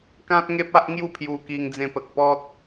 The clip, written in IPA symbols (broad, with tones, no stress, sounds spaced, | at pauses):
k ã˦ t̚ ŋ e˦ p̚ a˦ ʔ ŋ j u˥˧ pʰ j u˧ k i˧ ŋ d͡z ẽ˧ p ə˨ k̚ p ɔ˦ t̚